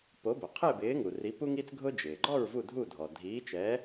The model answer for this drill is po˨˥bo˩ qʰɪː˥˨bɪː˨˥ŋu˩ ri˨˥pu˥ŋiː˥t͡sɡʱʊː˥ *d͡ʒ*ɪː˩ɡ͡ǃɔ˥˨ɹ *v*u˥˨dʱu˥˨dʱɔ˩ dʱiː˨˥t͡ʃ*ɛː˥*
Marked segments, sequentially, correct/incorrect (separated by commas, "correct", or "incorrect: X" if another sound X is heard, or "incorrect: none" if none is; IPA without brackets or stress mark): correct, correct, incorrect: ɛː˨˥